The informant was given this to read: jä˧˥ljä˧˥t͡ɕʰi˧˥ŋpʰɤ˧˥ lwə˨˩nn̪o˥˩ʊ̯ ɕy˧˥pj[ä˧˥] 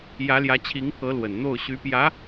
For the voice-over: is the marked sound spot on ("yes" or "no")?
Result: yes